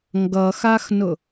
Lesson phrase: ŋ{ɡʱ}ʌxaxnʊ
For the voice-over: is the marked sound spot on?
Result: no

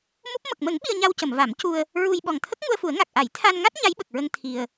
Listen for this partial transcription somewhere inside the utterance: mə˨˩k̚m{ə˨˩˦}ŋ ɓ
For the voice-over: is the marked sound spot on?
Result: yes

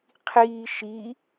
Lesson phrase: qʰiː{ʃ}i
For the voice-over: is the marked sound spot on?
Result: yes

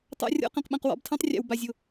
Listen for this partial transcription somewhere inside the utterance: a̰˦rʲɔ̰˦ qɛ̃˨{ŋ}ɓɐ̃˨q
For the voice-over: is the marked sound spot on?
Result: no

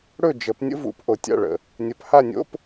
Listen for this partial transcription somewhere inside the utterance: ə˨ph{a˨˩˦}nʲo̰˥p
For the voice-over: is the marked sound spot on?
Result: no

